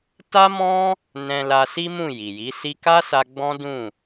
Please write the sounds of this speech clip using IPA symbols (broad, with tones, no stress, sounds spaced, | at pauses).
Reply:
t a˦ m ɔ̃˦ | n ɛ̃˧ l a˧ s i˦ m ũ˦˨ j i˨ j i˨˦ s i˧ k a˦ s a˧ ɡ͡b ɔ̃˦ d ũ˦˨